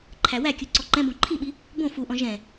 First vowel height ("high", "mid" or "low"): low